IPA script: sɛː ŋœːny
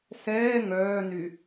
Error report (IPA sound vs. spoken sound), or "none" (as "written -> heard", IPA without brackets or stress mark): none